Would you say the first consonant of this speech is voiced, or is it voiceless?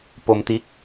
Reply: voiceless